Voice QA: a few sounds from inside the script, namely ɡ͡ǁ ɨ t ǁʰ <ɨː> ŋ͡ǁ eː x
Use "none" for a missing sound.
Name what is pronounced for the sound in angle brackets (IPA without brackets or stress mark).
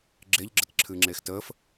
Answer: ɨː